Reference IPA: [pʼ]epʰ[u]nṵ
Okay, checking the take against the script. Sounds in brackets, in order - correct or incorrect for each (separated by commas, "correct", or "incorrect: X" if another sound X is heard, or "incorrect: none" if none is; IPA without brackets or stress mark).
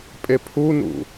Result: correct, correct